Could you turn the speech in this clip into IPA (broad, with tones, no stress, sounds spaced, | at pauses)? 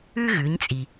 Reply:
ʉ˥ ɣ ʉ˩˧ ɲ t͡sʼ i˩